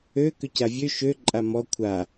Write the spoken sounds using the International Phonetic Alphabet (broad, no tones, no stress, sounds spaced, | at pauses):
ø k ø c a vʲ ø ʃ ø ǃʼ a m ɔ kʷʰ a